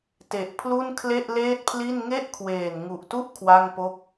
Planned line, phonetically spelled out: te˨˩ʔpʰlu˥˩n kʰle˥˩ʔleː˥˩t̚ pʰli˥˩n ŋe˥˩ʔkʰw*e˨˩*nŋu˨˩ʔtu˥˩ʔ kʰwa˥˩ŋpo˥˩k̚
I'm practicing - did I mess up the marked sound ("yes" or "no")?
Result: yes